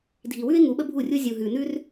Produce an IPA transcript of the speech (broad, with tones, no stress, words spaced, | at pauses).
dʱi˨wʉ˦ɪ̯ ŋu˨˦ɓə˦bʱu˦˨rʲu˦ zʲu˨ ɦʉ˨nʉ˦r